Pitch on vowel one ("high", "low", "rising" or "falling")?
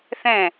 falling